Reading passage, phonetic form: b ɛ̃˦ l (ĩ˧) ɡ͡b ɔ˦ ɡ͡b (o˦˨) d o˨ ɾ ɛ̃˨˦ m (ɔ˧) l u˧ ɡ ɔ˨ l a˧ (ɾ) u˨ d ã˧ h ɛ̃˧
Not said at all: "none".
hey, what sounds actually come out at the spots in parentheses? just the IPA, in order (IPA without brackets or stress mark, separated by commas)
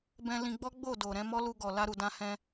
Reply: ĩ˧, o˦˨, ɔ˦, ɾ